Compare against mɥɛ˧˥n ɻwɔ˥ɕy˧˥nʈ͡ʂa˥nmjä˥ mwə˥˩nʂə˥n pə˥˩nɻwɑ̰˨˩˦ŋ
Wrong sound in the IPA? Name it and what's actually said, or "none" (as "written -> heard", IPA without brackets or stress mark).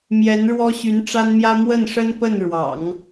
ɥ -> j